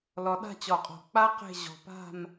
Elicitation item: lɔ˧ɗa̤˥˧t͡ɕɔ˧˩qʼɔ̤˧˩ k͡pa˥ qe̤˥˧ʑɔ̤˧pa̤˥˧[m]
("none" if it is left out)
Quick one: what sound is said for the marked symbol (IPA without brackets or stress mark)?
m